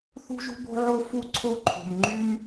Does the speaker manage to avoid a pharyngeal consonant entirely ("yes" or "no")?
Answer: no